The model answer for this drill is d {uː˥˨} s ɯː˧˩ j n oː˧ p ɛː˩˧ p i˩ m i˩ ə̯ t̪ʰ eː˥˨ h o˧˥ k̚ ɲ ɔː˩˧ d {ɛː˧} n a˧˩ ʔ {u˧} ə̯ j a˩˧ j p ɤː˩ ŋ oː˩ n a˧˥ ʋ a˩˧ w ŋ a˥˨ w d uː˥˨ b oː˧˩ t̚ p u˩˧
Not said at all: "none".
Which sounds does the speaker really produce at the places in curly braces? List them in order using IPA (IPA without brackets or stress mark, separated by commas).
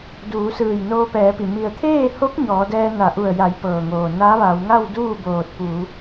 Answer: uː˩˧, ɛː˧, u˧˩